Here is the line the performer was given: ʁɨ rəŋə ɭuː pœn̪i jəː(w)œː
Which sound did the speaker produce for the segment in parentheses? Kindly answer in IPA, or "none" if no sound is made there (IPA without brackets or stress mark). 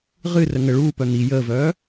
v